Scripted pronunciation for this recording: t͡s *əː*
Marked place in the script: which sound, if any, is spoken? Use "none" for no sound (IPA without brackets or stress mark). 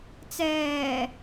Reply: ɛː